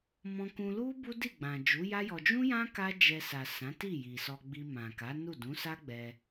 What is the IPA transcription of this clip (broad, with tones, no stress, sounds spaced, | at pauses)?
m ɔ̃˧ k ũ˧ l u˦ b u˦ d i˦˨ ɡ͡b ã˨ d͡ʒ u˨˦ j a˦ j ɔ˧ d͡ʒ ũ˦ j ã˦ k a˦ d͡ʒ ɛ˧ s a˨ s ã˨˦ t i˦˨ j i˨ s ɔ˧ ɡ͡b i˧ m ã˨ k a˨˦ n u˦˨ d ũ˨˦ s a˦ ɡ͡b ɛ˧